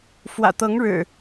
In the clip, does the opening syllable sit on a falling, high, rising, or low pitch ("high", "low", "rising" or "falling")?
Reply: low